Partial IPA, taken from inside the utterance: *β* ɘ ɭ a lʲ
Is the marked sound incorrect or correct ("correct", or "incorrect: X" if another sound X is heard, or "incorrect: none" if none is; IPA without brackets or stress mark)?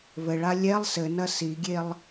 correct